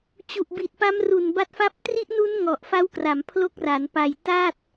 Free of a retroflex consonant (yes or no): yes